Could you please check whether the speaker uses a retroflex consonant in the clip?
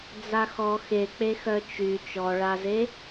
yes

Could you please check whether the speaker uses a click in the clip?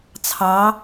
no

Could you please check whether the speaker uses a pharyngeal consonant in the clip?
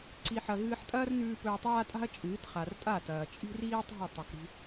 yes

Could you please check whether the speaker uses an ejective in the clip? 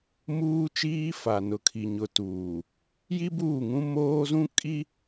yes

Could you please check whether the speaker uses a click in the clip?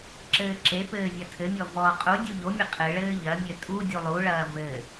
yes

